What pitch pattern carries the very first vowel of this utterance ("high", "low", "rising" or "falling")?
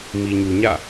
low